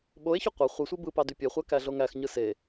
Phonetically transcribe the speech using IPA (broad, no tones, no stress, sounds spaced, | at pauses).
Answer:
ɓ o e̯ ç y qʷ ɑ χʷ ɯ sʷ i b ɯ p ɑ d y pʲ e χʷ æ k æ ɮ o ŋ æ x ɲ ɯ s e